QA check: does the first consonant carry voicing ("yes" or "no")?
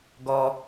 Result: yes